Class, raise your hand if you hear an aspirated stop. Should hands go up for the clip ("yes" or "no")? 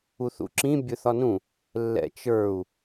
no